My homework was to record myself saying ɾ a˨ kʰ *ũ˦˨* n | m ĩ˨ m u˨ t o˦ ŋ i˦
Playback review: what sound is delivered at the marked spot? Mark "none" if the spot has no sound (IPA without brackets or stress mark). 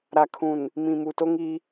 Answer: ũ˨